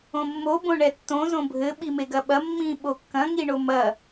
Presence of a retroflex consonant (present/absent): present